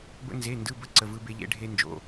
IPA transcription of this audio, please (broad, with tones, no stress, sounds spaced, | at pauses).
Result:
b ə̰˥ n z e˧˥˧ n d ɯ˧˥˧ b ə˥ ǀ ə˧˥˧ v ɯ˥ b e˥ ʎ ḛ˥ ɖʱ e˥ n d͡ʒ o̰˧˥˧